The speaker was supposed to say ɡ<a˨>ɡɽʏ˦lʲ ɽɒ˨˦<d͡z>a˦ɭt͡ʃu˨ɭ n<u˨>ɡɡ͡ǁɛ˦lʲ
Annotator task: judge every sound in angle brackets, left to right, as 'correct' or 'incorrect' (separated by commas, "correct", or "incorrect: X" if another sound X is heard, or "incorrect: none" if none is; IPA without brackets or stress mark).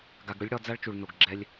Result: correct, correct, incorrect: o˨